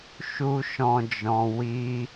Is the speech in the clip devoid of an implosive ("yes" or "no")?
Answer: yes